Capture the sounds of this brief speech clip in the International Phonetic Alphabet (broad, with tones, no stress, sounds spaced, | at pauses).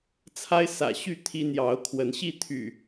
t͡sʰ a˦ ɪ̯ s ä̰˨˩ ɕ y˥˨ t̪ʰ i˦ n̪ j ɑ˨˦ ʊ̯ kʰ w ə˨˦ n ɕ i˥˨ t̪ʰ y̰˨˩